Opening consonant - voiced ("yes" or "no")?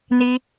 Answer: yes